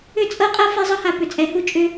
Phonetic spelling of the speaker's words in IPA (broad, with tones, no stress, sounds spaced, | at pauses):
ʏ˦ t͡sʼ ɤ˦ qʼ ɤ˦ f ɛ˦ zˤ ɤ˦ h a˨ p ʏ˨ t͡sʼ ɛ˨˦ h u˦ t͡ʃʼ ʏ˦